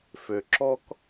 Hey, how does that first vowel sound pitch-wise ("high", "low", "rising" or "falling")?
low